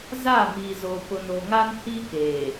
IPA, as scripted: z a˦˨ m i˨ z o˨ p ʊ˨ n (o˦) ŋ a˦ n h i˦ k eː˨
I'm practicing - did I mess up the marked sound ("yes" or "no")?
yes